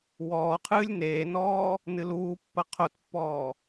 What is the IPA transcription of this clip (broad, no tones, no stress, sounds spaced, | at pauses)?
w ɔː qʰ ɨː lʲ n eː n ɔː | n ɨ l uː pː ɐ qʰ o t pː ɔː